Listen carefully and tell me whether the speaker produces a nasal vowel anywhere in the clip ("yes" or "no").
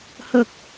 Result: no